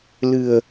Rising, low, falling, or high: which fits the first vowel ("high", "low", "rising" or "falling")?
low